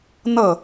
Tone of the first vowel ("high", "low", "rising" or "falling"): falling